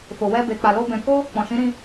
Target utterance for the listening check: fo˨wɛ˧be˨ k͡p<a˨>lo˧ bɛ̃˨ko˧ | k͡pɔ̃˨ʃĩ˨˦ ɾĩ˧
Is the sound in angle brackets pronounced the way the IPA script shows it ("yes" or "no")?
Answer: yes